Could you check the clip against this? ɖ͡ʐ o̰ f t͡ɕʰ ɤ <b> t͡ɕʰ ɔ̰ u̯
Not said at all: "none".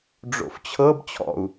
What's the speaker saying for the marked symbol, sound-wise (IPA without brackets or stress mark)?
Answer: b